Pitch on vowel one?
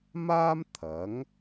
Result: high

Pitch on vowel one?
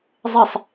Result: falling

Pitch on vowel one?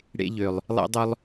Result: high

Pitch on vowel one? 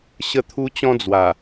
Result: high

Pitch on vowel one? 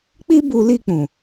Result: high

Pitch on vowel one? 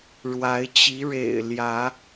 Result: rising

